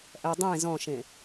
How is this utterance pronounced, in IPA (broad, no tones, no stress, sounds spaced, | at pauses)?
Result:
ʔ ɜ dˤ ẽ z ɔ̃ ʃ ẽ